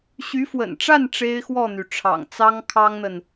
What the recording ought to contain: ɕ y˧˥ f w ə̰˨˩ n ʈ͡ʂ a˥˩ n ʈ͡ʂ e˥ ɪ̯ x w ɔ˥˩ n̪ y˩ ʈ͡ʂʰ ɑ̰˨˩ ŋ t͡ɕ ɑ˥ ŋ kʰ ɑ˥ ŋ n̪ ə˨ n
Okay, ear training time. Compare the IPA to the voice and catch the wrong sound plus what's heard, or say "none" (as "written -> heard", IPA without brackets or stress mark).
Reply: t͡ɕ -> t͡s